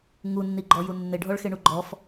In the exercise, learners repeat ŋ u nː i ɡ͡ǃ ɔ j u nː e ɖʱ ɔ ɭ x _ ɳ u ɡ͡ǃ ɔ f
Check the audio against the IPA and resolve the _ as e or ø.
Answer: e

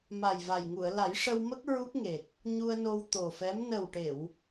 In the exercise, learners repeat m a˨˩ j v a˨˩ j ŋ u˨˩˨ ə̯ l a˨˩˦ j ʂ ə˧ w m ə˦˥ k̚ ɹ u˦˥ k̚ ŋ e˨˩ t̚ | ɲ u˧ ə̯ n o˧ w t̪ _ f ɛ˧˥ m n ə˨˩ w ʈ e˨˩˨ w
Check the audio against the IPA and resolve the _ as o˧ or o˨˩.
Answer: o˨˩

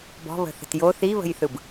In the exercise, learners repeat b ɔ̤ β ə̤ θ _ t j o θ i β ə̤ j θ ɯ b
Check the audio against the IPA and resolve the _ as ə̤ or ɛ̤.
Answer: ə̤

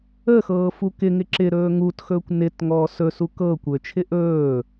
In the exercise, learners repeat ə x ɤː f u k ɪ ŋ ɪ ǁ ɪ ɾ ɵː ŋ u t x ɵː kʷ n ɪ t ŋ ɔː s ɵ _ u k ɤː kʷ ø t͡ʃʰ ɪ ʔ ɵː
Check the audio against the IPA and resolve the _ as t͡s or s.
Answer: s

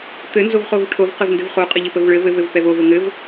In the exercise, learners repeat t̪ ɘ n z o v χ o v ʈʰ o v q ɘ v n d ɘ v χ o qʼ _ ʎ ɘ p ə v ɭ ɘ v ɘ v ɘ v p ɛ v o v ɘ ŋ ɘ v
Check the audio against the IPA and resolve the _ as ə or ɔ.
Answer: ə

